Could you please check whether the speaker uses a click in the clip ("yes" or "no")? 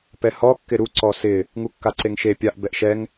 yes